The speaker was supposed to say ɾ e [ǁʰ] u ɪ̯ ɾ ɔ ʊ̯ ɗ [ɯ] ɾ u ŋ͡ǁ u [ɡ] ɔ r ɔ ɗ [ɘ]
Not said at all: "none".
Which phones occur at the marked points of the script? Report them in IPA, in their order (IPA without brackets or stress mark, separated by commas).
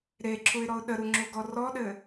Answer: ǁʰ, ə, ɡ, ɘ